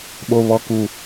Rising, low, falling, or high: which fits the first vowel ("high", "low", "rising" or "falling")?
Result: low